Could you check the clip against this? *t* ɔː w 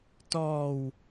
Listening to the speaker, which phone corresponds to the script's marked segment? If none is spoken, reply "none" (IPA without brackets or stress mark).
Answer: t